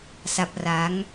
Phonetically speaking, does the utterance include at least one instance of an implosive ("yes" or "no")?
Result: no